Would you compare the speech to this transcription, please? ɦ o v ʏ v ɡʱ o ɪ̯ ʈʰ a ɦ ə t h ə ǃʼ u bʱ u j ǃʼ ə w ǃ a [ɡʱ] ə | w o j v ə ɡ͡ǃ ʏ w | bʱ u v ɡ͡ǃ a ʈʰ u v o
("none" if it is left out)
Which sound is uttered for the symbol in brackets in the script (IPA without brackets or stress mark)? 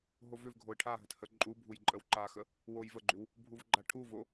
x